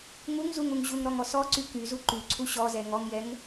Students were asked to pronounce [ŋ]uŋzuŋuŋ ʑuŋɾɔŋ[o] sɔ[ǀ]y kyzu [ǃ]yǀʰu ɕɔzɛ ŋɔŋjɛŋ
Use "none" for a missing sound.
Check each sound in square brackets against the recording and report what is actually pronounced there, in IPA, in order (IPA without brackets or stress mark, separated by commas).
ŋ, ɔ, ǀ, ǃ